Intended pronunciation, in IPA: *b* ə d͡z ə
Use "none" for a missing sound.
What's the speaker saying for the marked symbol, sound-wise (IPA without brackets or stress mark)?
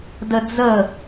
d